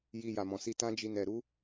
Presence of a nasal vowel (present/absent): present